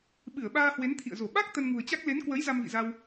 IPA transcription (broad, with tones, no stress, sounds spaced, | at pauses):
ɓ ɨ˧˩ ə̯ ɓ aː˧ h w e˨˦ n t̪ʰ ḭ˧˨ ə̯ z o˧˩ ɓ a˦˥ k̚ t̪ ə˧ n ŋ ṳ˨˩ ə̯ t͡ɕ a˦˥ k̚ l e˨˦ n k w ə˨˦ j z a˧ m v ḭ˧˨ z a˧ w